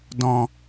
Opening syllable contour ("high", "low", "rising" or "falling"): low